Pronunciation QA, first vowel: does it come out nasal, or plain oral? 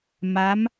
oral